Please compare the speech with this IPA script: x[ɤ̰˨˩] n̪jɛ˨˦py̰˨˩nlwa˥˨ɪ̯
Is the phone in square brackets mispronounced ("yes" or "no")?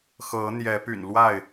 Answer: yes